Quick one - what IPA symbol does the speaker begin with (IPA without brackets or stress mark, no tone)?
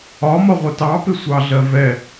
ɒ